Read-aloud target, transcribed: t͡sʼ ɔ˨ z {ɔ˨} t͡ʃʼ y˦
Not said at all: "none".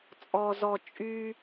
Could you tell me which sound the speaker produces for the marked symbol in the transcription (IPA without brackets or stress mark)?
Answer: ɔ˨